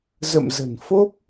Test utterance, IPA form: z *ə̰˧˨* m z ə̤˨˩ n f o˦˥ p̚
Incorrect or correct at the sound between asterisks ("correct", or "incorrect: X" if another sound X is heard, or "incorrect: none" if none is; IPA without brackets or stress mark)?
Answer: correct